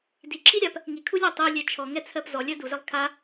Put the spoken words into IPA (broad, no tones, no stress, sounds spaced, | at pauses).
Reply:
d i ǁʰ i ɾʲ a p | ŋ i kʰ u lʲ a tˤ i lʲ ɛ t͡ʃʰ ɔ ŋ ɛ t͡sʰ ɜ p z ɔ lʲ ɜ d u z ɛ lˠ kʰ a